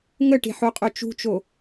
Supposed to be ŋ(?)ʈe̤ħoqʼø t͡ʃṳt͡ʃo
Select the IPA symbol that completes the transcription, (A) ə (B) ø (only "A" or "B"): A